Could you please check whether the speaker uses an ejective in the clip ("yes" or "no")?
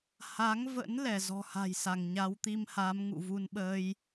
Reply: no